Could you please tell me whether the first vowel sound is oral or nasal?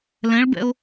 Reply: nasal